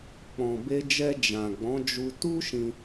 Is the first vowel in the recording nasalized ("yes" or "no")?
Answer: yes